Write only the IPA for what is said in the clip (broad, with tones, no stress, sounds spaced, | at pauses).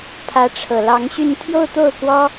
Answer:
pʰ ä˧˥ ʈ͡ʂʰ ɤ˨˩ l ɑ˧˥ ŋ ɕ y˥˧ n t̪ʰ j o˥˧ ʊ̯ t̪ o˥˩ ʊ̯ k w ɔ˥